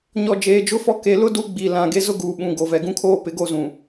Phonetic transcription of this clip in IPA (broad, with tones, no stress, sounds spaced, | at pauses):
ɲ ɔ˨ d͡ʒ eː˨ d͡ʒ ʊ˦ f ɔ˦ k e˨ l ʊ˦ d u˦ ɡ͡b i˨ l ã˨ ɡ e˦ z ʊ˦ ɡ uː˨ ɓ ũ˨ ɡ o˨ v ɛ˨ ɡ ũ˦ kʰ oː˦ p ɪ˨˦ ɡ o˦˨ z ũ˨